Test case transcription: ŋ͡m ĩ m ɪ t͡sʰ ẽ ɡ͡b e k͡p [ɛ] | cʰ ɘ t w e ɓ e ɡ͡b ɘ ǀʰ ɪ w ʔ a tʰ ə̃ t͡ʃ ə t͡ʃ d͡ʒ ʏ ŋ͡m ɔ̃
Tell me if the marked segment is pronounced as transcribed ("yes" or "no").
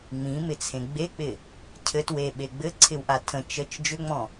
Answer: no